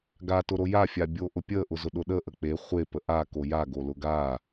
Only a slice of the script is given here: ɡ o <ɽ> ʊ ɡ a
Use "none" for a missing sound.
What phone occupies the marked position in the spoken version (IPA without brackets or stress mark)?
l